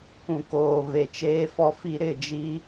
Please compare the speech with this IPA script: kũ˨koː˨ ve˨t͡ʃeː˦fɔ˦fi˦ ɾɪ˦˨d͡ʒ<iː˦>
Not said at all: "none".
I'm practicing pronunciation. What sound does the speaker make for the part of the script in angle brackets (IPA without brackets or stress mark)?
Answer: i˦